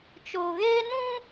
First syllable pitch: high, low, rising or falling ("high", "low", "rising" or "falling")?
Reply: low